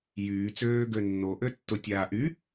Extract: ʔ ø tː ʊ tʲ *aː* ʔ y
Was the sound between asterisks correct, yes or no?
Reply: yes